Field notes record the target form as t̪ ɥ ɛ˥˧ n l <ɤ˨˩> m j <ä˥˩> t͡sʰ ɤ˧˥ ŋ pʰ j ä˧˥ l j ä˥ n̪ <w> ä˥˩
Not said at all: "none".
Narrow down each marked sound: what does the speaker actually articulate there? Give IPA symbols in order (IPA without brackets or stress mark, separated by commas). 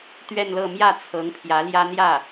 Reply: ɤ˥˧, ä˥˩, j